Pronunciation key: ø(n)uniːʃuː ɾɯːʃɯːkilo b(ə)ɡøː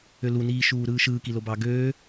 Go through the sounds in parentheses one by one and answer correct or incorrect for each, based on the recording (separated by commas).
incorrect, incorrect